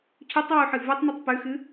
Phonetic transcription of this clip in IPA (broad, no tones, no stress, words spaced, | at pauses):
cʰʉtˤwuħɨ vutˤnɵtˤ pʉxɨ